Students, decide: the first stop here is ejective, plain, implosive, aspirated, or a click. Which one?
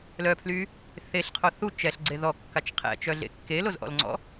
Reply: aspirated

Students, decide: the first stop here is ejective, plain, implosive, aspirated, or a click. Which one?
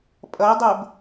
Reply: ejective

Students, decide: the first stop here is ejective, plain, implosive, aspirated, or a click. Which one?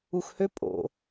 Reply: ejective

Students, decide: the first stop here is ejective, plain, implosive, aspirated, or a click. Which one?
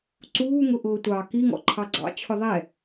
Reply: click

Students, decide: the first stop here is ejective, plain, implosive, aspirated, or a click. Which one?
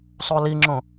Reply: click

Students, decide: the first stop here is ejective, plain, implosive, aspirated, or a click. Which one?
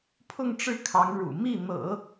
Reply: aspirated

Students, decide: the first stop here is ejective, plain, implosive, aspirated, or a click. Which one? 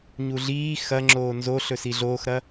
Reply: click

